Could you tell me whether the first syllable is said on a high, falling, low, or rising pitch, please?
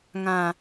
low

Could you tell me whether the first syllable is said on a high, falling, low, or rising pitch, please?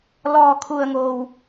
low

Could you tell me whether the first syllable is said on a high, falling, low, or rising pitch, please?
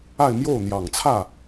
falling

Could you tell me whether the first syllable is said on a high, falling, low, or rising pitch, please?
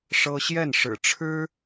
high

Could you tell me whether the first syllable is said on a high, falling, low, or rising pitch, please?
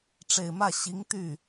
low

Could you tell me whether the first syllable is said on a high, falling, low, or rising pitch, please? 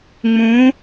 rising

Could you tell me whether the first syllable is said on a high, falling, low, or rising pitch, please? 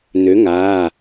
rising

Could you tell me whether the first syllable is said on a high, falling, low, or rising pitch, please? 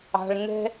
low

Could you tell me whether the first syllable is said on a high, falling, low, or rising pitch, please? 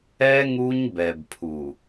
high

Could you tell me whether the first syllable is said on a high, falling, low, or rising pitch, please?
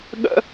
high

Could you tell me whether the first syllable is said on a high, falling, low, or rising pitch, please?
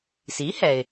rising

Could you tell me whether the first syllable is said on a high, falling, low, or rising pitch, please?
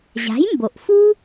rising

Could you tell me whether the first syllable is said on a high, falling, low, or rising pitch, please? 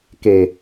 low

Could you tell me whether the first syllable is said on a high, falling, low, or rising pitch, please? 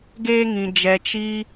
high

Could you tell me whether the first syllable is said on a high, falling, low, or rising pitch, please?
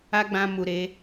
high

